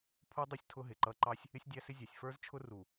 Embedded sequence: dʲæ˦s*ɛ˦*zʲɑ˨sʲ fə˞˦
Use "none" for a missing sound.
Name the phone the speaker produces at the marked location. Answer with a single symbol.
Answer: ɪ˦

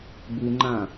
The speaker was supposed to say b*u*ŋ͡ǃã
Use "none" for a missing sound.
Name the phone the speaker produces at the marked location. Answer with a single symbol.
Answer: u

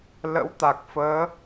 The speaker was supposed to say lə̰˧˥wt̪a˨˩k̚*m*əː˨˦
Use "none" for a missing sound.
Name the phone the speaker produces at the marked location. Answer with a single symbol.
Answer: f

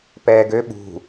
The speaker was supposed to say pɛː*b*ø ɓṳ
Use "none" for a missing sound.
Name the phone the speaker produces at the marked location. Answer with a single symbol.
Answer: ɡ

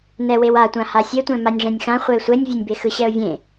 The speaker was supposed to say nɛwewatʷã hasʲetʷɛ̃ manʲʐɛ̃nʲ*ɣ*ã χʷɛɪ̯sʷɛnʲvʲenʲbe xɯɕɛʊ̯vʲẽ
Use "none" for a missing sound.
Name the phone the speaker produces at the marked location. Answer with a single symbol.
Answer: x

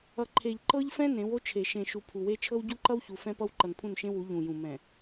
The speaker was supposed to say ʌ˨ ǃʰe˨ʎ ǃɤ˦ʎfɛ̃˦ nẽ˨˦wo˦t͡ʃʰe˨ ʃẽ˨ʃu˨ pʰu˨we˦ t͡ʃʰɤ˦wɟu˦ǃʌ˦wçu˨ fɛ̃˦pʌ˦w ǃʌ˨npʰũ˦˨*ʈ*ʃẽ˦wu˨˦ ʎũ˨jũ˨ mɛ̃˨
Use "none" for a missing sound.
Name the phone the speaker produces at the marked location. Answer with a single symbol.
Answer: n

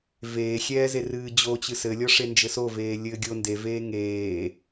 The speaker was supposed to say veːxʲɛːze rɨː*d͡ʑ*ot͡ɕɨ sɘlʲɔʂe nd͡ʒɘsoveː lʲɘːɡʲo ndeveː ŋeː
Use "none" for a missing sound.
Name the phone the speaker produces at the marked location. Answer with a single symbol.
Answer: d͡ʑ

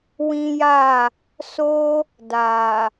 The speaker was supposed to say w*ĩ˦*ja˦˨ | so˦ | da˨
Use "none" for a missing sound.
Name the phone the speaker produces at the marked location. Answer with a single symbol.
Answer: ĩ˦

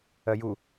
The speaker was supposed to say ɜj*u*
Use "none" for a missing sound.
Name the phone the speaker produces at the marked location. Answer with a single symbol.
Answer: u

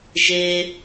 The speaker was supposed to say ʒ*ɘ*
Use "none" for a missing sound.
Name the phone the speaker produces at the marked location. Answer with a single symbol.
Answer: e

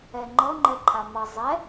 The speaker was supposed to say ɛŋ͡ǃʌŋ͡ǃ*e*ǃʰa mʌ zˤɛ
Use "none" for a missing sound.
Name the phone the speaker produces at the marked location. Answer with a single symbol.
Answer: ɛ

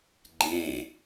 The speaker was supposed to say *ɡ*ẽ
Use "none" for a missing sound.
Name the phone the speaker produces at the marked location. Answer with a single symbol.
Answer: ɡ͡ǃ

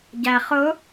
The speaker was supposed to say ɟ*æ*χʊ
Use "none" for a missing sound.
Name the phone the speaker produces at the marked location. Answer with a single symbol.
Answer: æ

